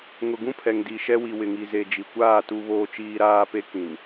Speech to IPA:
ŋ ʊ˨ ɡ ũ˦ pʰ ɛ˨ ŋ d i˨ ʃ ɛ˦ w i˨ w ɪ˨ ŋ i˨ z e˨ d͡ʒ i˨ kʷ aː˦˨ t u˨ β oː˨ t͡ʃ iː˨ ɾ aː˦ p e˦ k ĩ˨ n

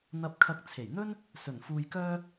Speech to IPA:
n̪ ɐ˧ p̚ kʰ ɐ˧ k̚ t͡sʰ e˨˩ j n̪ ɵ˥ n | s ɵ˨˩ n f uː˧ j k œː˥

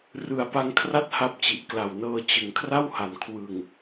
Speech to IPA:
r ɯ˨˩ a̯ p a˧ ŋ kʰ r a˥˩ t̚ h a˥˩ p̚ t͡ɕ i˨˩ ʔ k l a˨˩ w n ɤː˧ t͡ɕ ɯ˩˦ ŋ kʰ r a˥˩ w h a˩˦ n kʰ w ɯ˨˩ ŋ

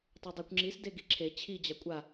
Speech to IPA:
tˤ y dˤ y kʷ ŋ͡ǁ i s d e ɡ i ǁʰ e t͡ɕʰ i d͡ʑ a kʷʼ a

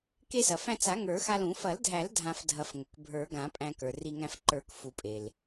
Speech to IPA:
k e˧ s ɐ˩ f æ̃˧ t͡s a˨˩˦ ŋ ə˞˨˩˦ x a˧ l ũ˨˩˦ f ɐ˨˩˦ l dʱ æ˨˩˦ l dʱ ã˧ f dʱ ɐ˨˩˦ f ŋ ɵ˩ k bʱ ə˞˨˩˦ ɡ ã˨˩˦ pʼ æ̃˧ k ə˞˩ r i˧ ŋ æ̃˧ f ǃ ə˞˨˩˦ k f u˨˩˦ pʼ e˩ l

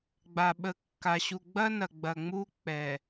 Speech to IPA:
ɡ͡b a˨ ɓ ə˨˦ kː a˨ ɕ u˨ ɡ͡b ɐ˦ n ɐ˨ ɡ͡b ɐ˨ ŋ͡m u˦ k͡p ɛ˨

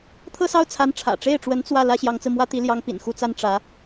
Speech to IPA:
t̪ʰ ɤ˥˧ s ɑ˥˩ ʊ̯ t͡sʰ a˧˥ n ʈ͡ʂʰ ä̰˨˩ ʈ͡ʂ e˥˩ ɪ̯ ʈ͡ʂ w ə˧˥ n t͡s w ä˥˩ l ä˥ ɕ j ɑ˧˥ ŋ t͡s ɹ̩˧ m w ä˥ t̪ i˧˥ l j ɑ˧˥ ŋ p ḭ˨˩ n x u˥ t͡s a˥ n ʈ͡ʂ ä˧˥

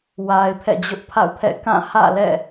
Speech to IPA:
w a˨ ɪ̯ pʰ ɛ̰˦˨ d͡ʑ ʊ˦ ʔ pʰ a̰˦˨ ʊ̯ pʰ ɛ̰˦˨ k ã˦˨ h ä̰˦˨ l ɛ̰˦˨

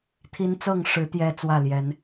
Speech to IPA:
t̪ʰ i˦ n t͡s ɤ˥˨ ŋ ʂ ɻ̩˨˦ t̪ j ɛ˦ t͡s w ä˥˨ l j ɛ˨˦ n

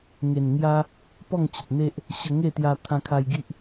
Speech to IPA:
ŋ e˨˩ n ŋ j a˦ | p ɔ˥˧ ŋ t͡ɕ ə˨ t̚ n̪ e˦ ʔ | ɕ ə˧ ŋ e˥˧ t̪ j a˧ t̪ʰ ã˧ kʰ a˧ j ɡ i˦ ʔ

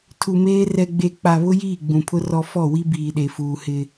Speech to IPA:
tʰ u˨ m eː˦ r ɛ˦ ɡ͡b e˦ k͡p a˨ β ʊ˦ j iː˦˨ ɡ͡b ũ˨ pʰ ʊ˦ r ɔ˦ f ɔ˦˨ w i˦ b iː˨ ɗ e˨ f uː˨ h ɪ˦

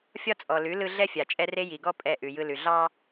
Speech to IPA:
fʲ ɒ˦ t͡sʼ ɔ˨ l ʉ˨˦ l ɯ˦ ɮ ɛ˦ fʲ a˨ t͡ʃʼ ɛ˦ r e˦ j i˨ ɡ ɔ˦ pʼ ɛ˦˨ ʔ ʉ˨ j ɯ˦ l ʉ˨ ɮ ɑ˦

